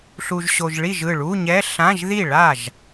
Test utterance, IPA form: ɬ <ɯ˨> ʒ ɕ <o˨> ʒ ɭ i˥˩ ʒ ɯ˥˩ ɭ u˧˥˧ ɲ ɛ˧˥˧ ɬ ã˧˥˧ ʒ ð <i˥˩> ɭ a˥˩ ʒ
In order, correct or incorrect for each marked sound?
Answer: incorrect: u˨, correct, correct

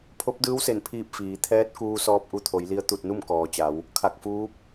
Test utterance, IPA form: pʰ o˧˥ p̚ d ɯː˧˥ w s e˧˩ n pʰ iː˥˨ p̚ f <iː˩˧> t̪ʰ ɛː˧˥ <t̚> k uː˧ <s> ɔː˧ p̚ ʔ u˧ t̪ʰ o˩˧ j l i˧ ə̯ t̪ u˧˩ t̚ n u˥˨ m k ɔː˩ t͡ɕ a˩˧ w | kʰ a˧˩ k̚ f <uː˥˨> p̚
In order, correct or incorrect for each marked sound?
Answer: correct, correct, correct, incorrect: uː˧˥

